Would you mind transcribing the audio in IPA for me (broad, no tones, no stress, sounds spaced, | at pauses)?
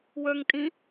w ə˞ ŋ tʼ ĩ